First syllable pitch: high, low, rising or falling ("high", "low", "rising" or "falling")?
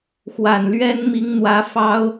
low